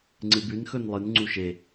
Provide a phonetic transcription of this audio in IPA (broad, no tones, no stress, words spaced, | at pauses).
ŋ͡ǀɨbʉn xɵnlˠɨn ŋ͡ǀuʃe